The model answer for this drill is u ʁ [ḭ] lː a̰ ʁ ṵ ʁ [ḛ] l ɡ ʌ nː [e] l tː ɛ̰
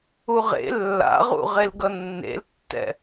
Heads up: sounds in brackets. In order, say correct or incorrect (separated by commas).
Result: incorrect, incorrect, incorrect